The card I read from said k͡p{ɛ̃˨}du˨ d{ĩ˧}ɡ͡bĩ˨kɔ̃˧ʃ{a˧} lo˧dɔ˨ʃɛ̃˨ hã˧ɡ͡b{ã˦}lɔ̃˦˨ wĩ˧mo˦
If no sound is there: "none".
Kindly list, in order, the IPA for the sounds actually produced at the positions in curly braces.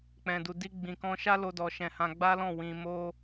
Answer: ɛ̃˨, i˧, a˦, a˦

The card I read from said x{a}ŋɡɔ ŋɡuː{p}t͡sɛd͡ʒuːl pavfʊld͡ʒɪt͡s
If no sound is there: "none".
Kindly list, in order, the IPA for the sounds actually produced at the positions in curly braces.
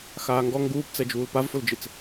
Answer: aː, p

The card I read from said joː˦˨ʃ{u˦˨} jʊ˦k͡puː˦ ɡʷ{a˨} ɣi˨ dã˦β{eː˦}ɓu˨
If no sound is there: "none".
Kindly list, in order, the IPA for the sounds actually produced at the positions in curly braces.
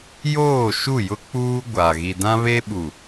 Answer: u˦˨, a˨, eː˦

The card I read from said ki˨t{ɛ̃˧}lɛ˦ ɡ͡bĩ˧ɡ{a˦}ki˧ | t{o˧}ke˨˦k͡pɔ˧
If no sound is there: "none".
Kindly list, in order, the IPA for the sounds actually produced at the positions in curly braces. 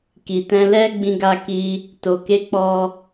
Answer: ɛ̃˧, a˧, o˨

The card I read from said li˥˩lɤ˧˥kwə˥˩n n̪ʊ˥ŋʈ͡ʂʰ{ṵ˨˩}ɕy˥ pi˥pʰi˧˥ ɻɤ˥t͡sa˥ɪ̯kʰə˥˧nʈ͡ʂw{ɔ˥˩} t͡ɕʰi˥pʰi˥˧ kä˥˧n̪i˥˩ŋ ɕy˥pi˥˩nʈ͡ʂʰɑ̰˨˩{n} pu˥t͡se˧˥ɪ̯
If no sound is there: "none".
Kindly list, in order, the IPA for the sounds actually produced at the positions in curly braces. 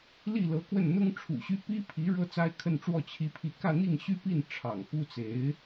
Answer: ṵ˨˩, ɔ˥˩, ŋ

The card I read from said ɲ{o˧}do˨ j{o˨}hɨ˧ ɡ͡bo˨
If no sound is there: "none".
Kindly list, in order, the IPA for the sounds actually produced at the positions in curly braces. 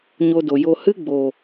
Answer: o˧, o˨

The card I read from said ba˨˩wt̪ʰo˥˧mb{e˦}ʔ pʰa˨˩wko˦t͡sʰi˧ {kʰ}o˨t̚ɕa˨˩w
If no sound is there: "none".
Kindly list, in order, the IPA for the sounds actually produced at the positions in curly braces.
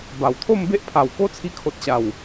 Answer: e˦, kʰ

